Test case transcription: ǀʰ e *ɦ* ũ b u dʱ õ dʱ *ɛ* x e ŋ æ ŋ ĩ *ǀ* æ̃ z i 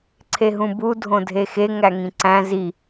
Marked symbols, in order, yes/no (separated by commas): yes, no, yes